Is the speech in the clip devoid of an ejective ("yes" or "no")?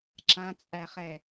no